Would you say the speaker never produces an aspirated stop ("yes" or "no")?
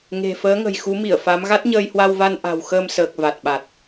yes